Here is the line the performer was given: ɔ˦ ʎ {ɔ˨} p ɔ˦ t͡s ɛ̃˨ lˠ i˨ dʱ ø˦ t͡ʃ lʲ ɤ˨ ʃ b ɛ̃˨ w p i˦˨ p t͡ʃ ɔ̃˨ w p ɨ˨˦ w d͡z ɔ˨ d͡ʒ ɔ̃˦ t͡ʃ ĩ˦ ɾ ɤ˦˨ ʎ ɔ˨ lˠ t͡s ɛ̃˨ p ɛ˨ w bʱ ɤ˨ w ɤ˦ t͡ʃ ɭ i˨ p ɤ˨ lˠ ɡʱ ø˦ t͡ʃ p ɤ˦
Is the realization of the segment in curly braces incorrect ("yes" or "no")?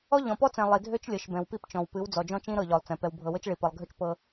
yes